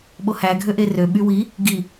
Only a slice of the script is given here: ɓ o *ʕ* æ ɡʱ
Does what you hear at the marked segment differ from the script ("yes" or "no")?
yes